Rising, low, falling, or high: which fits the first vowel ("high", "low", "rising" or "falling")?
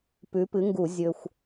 rising